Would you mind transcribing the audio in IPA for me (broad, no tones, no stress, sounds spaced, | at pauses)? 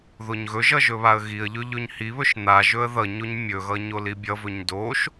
ð o ɲ ɣ ɵ ʒ ʌ ʒ ɵ β a ə̯ ɣ i ə̯ ʎ ɵ ʎ ɵ ɲ h i β ɵ ʃ n̪ a ʒ ɵ ə̯ ð ʌ ɲ o ɲ mʲ ɵ ɣ ʌ ɲ o l i bʲ ʌ v ɵ ɲ d o ʃ